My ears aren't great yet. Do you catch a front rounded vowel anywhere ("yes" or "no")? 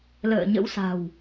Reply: no